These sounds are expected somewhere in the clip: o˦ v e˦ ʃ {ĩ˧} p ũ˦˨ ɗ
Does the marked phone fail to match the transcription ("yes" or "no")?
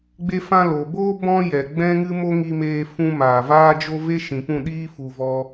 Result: yes